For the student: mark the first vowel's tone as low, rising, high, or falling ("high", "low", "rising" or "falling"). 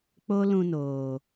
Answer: high